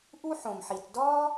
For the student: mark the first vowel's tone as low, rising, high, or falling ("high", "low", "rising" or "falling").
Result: high